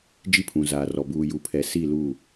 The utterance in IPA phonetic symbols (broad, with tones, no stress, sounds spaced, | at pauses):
d͡ʒ i˦ pʰ ũ˨ z aː˨ r ɔ˨ b uː˨ j u˨ pʰ ɛ˨ s i˦˨ l u˦˨